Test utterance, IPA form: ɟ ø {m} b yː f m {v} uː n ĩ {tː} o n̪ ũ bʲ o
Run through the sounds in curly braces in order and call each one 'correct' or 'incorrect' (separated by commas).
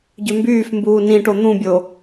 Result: correct, incorrect, incorrect